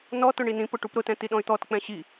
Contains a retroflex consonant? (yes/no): yes